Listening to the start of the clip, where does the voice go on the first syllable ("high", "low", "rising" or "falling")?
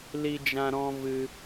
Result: high